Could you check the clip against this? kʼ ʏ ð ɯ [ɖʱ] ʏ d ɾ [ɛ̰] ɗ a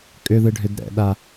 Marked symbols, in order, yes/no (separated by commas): yes, yes